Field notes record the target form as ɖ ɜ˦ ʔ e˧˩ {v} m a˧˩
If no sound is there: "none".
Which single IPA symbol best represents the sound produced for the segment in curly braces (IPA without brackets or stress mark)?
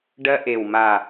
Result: w